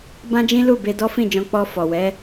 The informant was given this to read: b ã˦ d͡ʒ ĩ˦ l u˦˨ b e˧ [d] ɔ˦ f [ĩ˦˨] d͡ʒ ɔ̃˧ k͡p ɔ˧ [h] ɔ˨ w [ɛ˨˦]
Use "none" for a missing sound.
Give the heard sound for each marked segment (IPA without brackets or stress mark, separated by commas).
d, ĩ˦˨, f, ɛ˨˦